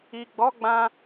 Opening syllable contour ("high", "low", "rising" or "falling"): low